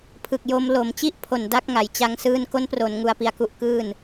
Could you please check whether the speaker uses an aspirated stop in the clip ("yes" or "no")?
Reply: yes